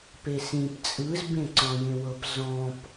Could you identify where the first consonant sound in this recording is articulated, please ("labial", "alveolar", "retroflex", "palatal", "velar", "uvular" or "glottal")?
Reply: labial